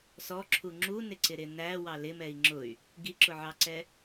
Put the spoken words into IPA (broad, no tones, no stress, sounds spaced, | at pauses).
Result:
s ɔ ǁʰ u ŋ͡ǁ u n ɪ ǀ ɪ ɾ ɪ n æ w ɑ l ɪ m ɛ i̯ ŋ͡ǁ ʊ y̯ | ɡ i ǁ ʊ ʕ ɑ ǀ ɛ